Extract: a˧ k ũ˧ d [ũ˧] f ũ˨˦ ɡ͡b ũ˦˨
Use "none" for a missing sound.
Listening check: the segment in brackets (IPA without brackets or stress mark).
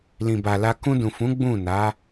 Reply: ũ˨